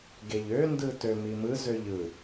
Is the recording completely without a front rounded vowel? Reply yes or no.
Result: no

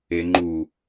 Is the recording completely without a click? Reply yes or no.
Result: no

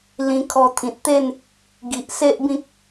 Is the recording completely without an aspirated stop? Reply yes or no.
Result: no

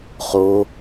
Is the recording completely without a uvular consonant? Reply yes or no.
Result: no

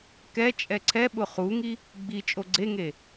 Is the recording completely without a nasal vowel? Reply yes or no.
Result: yes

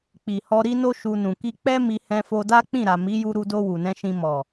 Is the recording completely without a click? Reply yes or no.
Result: yes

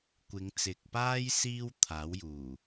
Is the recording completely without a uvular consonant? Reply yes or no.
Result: yes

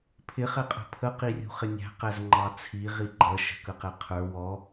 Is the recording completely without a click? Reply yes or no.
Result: no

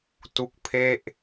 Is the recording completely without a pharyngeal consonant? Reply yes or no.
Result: yes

